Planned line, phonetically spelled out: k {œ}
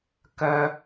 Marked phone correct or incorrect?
correct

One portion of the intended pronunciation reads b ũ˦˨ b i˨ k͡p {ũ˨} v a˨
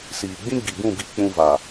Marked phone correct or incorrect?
correct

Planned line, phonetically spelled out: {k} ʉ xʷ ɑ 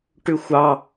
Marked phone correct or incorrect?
incorrect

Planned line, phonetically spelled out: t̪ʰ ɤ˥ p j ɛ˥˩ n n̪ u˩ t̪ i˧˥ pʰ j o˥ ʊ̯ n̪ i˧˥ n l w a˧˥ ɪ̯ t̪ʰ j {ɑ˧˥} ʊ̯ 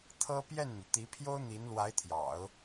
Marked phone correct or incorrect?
incorrect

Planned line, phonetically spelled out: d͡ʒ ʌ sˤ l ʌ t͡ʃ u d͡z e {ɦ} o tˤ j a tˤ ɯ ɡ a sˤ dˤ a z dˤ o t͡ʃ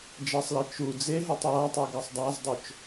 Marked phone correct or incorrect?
correct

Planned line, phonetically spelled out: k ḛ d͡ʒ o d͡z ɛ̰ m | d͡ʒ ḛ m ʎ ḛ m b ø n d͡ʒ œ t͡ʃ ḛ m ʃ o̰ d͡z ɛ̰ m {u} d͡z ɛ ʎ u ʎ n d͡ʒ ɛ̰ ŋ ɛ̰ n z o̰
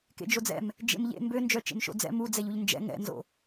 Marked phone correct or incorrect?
correct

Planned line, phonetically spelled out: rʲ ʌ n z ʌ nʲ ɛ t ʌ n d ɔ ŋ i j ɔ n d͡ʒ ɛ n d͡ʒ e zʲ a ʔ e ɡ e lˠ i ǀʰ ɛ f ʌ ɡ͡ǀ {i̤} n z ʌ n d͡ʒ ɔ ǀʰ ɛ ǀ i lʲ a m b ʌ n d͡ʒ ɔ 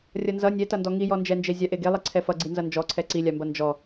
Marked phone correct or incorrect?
incorrect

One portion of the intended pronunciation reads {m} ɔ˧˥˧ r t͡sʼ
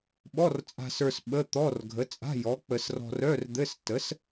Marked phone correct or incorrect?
incorrect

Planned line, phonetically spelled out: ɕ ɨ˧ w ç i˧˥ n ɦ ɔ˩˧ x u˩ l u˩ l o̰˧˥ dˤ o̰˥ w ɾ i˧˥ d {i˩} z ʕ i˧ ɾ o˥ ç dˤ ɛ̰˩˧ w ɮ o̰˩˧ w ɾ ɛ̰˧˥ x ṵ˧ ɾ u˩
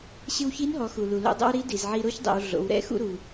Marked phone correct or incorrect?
correct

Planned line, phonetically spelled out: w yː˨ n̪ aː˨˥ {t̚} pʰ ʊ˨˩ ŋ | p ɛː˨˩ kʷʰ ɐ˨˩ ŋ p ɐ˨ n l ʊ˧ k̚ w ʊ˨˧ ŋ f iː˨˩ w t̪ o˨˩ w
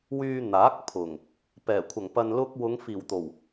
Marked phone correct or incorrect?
incorrect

